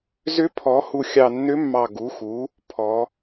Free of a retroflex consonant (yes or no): yes